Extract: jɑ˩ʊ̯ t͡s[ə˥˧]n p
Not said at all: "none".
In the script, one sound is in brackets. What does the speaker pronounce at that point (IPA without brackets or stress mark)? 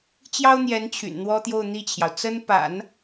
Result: ə˥